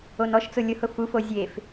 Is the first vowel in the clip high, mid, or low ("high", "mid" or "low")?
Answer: mid